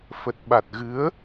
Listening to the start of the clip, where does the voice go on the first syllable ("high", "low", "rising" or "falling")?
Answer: low